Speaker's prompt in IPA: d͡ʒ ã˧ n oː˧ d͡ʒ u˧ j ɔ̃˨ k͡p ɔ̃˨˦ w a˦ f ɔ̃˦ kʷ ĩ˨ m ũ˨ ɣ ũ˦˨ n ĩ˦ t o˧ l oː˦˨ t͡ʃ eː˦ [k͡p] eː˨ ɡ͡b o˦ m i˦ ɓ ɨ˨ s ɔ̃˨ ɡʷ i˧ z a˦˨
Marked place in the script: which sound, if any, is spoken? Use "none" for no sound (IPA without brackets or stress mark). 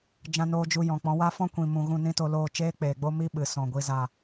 k͡p